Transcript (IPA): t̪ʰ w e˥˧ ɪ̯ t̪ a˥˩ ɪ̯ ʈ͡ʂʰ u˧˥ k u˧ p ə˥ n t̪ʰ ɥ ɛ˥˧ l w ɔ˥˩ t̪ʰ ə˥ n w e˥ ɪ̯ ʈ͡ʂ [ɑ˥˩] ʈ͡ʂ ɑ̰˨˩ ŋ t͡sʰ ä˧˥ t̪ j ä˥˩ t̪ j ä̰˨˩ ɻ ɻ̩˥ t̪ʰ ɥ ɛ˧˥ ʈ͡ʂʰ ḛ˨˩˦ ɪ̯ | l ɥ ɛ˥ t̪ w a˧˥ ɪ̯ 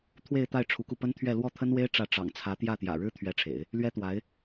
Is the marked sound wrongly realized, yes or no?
yes